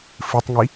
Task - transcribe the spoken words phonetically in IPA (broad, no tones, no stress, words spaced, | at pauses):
fɨtˤŋi